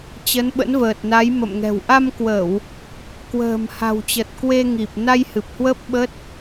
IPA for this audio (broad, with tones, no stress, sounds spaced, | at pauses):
t͡ɕ ə˨˦ n ɓ ə̰˧˥ n v əː˨˩ t̚ n a˨˦ j m ə̰˧˨ m ŋ ɛ̤˨˩ w ʔ a˧ m k w ə˧˩˨ w | k w ə̤ː˨˩ m h a̤˨˩ w t͡ɕ ə˨˩ t̚ k w e˧ ŋ i˨˩ p̚ n a˧ j h ɨ˨˩ p̚ h w ə˦˥ p̚ ɓ ə˦˥ t̚